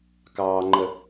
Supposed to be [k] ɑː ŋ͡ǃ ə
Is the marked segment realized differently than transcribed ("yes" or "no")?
no